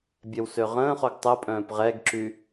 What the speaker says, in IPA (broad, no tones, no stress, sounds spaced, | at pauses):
bʲ ɛ w s ø ʁ ə̃ː χ o ɡ tˤ ə pʼ œ̃ː p ʁ ɛ ɡ ǁ y